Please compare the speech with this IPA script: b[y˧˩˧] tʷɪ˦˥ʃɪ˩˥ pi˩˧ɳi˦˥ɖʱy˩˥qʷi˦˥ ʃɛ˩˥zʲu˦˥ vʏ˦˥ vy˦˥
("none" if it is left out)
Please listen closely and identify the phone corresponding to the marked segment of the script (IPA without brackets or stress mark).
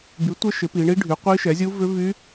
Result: y˩˥